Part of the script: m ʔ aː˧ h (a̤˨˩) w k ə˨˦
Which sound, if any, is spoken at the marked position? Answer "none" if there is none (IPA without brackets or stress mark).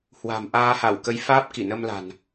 a˧˩